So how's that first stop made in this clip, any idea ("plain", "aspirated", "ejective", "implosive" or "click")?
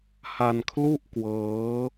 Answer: aspirated